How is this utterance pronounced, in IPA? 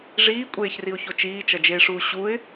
ʐ iː kʷʼ eː ç r i ʊ̯ ç o t͡ʃ iː t͡ʃ ʌ d͡ʒ eː ʂ uː ɕ u ɪ̯

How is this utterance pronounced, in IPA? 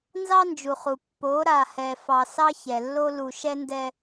n z ɑ˦ n d͡ʒ u˨ χ u˨ pː o˨˦ ɾ a˨ h ɛ˨ f ɑ˨ s ɑ˦ ç ɛ˨ lː o˦ l u˨ ʃ ɛ˦ n d ɛ˦

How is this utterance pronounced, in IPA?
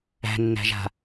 æ̤ nː æ̤ ʒ a̤

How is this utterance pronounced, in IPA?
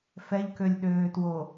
f ɛ ʎ k ø lʲ ɗ øː t w o

